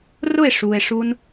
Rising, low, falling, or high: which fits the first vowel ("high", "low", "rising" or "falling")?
falling